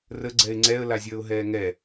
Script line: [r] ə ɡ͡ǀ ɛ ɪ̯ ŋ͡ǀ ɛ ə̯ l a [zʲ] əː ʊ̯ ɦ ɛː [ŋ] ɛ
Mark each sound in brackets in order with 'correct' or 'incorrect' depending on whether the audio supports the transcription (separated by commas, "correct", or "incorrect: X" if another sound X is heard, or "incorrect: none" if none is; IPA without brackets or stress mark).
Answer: correct, correct, correct